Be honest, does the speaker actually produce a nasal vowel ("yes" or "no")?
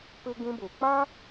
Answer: yes